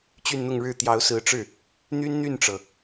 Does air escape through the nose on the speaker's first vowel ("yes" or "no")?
no